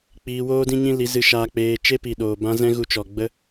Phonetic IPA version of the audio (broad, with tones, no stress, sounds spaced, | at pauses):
k͡p iː˧ w oː˦ d ĩ˦ ɲ ĩ˦ l i˨˦ z ɨ˧ ʃ aː˧ k͡p eː˧ t͡ʃ e˦ p i˨ ɗ oː˨ b ã˦ z ɛ̃˦ ɣ u˧ t͡ʃ ɔ˨ ɡ͡b ə˦